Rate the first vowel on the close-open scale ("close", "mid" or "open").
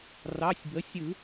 open